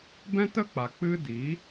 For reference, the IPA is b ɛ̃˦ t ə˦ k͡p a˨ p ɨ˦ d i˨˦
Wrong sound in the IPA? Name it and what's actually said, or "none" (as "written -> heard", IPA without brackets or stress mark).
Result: p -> k͡p